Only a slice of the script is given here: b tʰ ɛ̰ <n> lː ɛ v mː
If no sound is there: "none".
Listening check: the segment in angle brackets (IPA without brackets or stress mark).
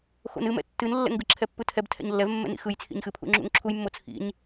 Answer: ɲ